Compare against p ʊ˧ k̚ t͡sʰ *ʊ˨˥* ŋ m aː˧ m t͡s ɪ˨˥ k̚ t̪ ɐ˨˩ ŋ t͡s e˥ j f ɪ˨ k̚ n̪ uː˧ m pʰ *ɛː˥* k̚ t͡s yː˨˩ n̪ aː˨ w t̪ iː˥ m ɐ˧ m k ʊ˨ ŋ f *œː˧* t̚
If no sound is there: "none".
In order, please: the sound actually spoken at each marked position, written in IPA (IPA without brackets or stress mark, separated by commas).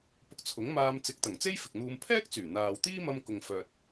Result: ʊ˨˥, ɛː˥, œː˨